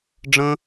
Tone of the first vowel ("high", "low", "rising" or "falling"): high